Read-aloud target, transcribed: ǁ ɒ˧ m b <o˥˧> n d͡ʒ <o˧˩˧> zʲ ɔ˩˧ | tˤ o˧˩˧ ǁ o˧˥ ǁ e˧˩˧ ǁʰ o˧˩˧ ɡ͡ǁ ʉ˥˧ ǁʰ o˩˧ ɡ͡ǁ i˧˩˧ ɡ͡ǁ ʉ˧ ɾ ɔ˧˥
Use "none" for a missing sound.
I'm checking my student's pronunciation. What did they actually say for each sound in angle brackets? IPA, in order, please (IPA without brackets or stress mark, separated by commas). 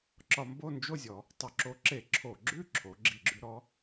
o˥˧, o˥˧